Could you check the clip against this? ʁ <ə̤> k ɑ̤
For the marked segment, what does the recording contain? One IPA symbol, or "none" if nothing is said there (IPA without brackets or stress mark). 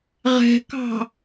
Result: ɛ̤